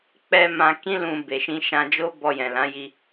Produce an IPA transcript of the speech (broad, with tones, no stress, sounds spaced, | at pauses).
k͡p ɛ˧ m ã˧ k ĩ˦ l ũ˧ b e˨ ʃ ĩ˧ ʃ ã˧ d͡ʒ o˦ b ɔ˧ j ɛ̃˨ l ã˨˦ j i˧